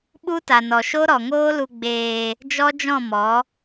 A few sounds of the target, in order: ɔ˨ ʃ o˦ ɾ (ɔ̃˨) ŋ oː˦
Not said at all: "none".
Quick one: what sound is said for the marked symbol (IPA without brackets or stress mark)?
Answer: ɔ˨